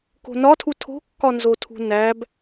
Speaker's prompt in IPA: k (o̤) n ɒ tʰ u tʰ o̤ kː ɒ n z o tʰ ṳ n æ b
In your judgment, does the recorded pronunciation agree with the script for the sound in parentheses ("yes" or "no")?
yes